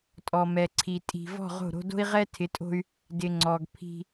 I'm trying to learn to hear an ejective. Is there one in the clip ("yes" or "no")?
yes